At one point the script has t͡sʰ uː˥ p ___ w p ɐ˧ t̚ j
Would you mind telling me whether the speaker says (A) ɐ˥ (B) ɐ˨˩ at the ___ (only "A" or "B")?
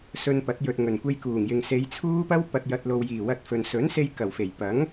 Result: A